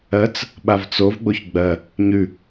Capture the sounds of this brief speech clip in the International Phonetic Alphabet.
ɜ t͡s | ɓ a v t͡s o v ɡ͡b o ç ɡ͡b ɜ | ɲ ʉ

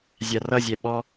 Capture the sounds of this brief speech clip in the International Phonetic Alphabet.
zʲ a r ʌ zʲ ɛ ɓ ɔ

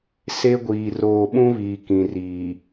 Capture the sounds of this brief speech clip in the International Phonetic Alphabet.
s e˦ ɡʷ iː˨ r oː˨ ɓ ũ˦ β iː˨ k ĩ˨ r iː˨

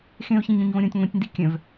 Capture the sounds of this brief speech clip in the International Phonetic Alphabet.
x ẽ ʊ̯ ç ẽ ɲ õ ɲ v õ ɾʲ õ tʲ ŋʷ ĩ tʲ n d i kʲ œ̃ v

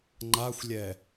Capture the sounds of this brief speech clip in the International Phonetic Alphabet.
ŋ͡ǃ a xʷ lʲ ɛ

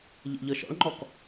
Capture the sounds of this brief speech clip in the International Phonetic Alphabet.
ʎ ḛ ʎ ɤ ʃ ɔ̰ ɭ ŋ͡ǃ ɔ k

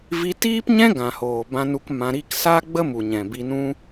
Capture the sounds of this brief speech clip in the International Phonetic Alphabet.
v i˧ t iː˦ p ɲ ɛ̃˦ ɡ ã˨ h oː˨ b ã˧ n u˧ k m ã˧ ɾ i˧ k s aː˦ ɡ͡b ə˦ m u˨ ɲ ɛ̃˨ b i˧ n ũ˦

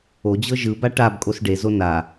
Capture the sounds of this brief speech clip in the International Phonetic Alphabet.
o d͡ʑ ɤ ʒ ɯ b a ʈ a b kʼ o s ɖ e z o n a

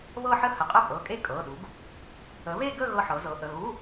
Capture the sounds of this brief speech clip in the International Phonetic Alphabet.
β ɤ˥˧ ħ ə˥˧ h ə˩˥ qʼ ə˥˧ pʼ ɤ˩˧˩ kʼ e˥˧ kʼ ɤ˩˧˩ ɗ u˩˥ ɡ | ə˩˥ β e˥˧ ɡ ə˥˧ ɣ ɤ˥˧ ħ ɤ˩˥ z ɤ˩˥ ʔ ə˩˧˩ ɣ u˧˥˧

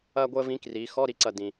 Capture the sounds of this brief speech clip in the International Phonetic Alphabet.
ɐː˥ ɡʷ əː˥ v ĩ˧˥ k r iː˩˧ x ɔ˧˥˧ ɾ i˧˥ ǀ ɐ˧˩ d ĩ˩

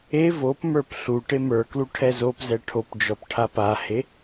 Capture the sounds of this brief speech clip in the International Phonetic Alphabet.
e v o p m ə˞ p ɬ u ʈ e m ə˞ k l u ʈʰ ɛ z o p z ɛ ʈʰ o p d͡ʒ ɔ p ʈʰ a p a h e

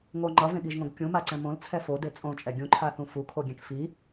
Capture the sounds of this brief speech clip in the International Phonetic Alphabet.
ŋ o ŋ͡ǃ ʌ v ẽ ɠ i ʒ ŋ õ ɡ kʲ ũ m a ǀ ɛ̃ m õ l t͡sʰ ɛ f o d e t͡sʼ õ t͡ʃʼ ɛ ɡʲ ũ ǃʰ a θ ũ f u kʰ o ɡʲ ɛ̃ k f i

